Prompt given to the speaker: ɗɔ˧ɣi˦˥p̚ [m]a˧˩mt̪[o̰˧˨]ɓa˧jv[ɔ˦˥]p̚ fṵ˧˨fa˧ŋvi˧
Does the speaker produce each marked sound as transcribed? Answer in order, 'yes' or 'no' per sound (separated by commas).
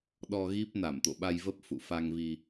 no, yes, no